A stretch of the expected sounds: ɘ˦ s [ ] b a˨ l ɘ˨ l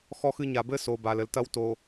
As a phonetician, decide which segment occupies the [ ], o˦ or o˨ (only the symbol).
o˨